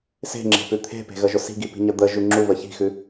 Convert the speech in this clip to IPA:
s e̤ ŋ͡ǁ e̤ p ʉ t̪ʰ e̤ p e̤ ɣ ə ʒ ʊ s i̤ ɡ i p i̤ ɲ ə d̪ ə ʒ ʉ ŋ͡ǁ u β ə ç i̤ x ʉ

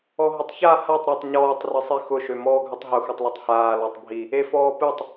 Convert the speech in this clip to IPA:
ɔ ɦ ʊ tˤ ç a h a tˤ ɾ ɵ tˤ ɲ ɔː tˤ r ɨ sˤ i x ʊ ʃ ø m ɔː ɡʱ ɵ tˤ ɦ ʊ x u tˤ l ɔ tˤ h aː l ɔ tˤ bʱ i | e f ɔː p ɨ tˤ

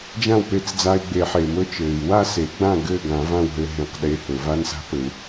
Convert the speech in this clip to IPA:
d͡ʒ ã˥˨ w p e˧ t͡s d͡z aː˧ i̯ ɡ͡b e˨˩˦ ħ e˩ m ɵ˧˥ t͡ʃ ɘː˩ i̯ w a˥˨ s e˨˩˦ ɡ͡b ã˥˨ ɡ ɘː˥˨ ɡ ã˨˩˦ v ã˥˨ w ɦ ɘ˧ ɦ ẽ˧˥ q ɗ e˧˥ h ɵ˨˩˦ v a˧˥ n s a̤˧˥ p ɘ˨˩˦ u̯

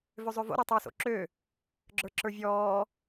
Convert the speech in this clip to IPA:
v ø zˤ ø v o̰ ɾ ɔ tˤ ə˞ s o̰ ǁ ø | ɡ͡ǁ ə˞ ǁ ə˞ vʲ ɔː

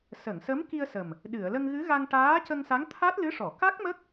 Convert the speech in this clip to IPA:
s ə˨˩˨ ŋ s ə˧˥ m k i˧ ə̯ s ə˨˩ m | ɗ ɨ˨˩˨ ə̯ l ə˧ ŋ ɣ ɨ˧˥ ɣ a˧ ŋ ʈ aː˧˥ c ə˧ ŋ s a˧˥ ŋ t̪ʰ a˦˥ t̚ l ɨ˧˥ ʂ ɔ˨˩˨ k a˦˥ k̚ m ə˦˥ k̚

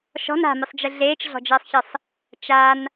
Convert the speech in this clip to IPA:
ʃ ɔ̤ n a̤ m ɨ sˤ d͡ʒ ɨ ɮ eː t͡ʃ ɮ ɔ̤ d͡ʒ ɘː sˤ ç ɘ sˤ | t͡ʃ a n

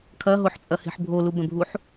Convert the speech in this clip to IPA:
kʰ ɐ ɦ o ħ t͡sʼ ɐ h e̤ ħ bʱ o l u b ɛ̃ bʱ u ħ

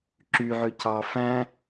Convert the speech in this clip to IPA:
ǁ y ʕ ø c ɑ f æ̃

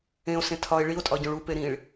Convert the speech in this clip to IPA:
ẽ o̯ s ẽ tʰ ɒ e̯ ɭ i o̯ tʼ ɒ ɟ õ ɭ u p e ɾ ĩ ɭ

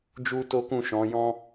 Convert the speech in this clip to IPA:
d͡ʒ u˦ t o˦ k ũ˦˨ ʃ ɔ̃˨˦ j ɔ̃˦

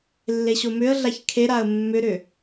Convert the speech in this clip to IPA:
lː e ɕ o m ʏ ə̯ ɮ a ç kʰ e ɾ a ə̯ mː ʏ ɾ ʏ

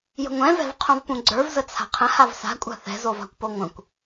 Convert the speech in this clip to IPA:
j ə̤ ŋʷ ɛ̃ v ɛ̤ v qʰ õ v p ũ ɡ͡ǀ ə˞ v z ə t͡sʰ a̤ qʰ ə̃ h a v s a̤ kʷʼ a̤ θ ɛ̤ z o v a̤ kʷ p o ŋʷ ə̃ kʷ

